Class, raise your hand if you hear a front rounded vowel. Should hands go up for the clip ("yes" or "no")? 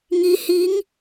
no